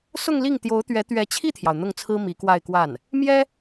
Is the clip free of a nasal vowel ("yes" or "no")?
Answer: yes